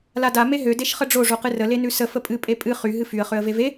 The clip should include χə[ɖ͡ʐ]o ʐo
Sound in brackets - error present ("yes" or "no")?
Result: no